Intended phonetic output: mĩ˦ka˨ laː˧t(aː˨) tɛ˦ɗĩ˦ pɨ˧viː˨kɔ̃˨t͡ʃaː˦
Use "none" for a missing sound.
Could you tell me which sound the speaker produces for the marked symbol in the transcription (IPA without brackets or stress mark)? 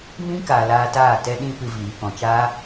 aː˦˨